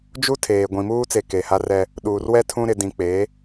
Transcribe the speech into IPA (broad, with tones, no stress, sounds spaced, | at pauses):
d͡ʒ u˦ tʰ eː˨ ɡʷ ĩ˨ m uː˦ t͡s e˨ k e˨ h a˦ r ɛ˦ | ɗ uː˨ r w ɛ˦ tʰ ũ˦ ɾ ɪ˨ d ĩ˨ k͡p e˨˦